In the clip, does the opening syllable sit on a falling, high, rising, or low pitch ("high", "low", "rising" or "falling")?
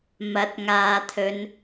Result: rising